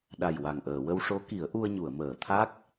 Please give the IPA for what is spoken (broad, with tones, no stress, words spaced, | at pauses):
ɗa˨˩jwa˨˩ŋʔəː˨˩˨wə˧w ʂo˧˥ki˨˩˦ə̯ʔu˧ə̯ɲu˨˩˨ə̯ məː˨˩˨t̪ʰa˦˥k̚